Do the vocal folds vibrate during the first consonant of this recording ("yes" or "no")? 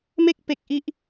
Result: yes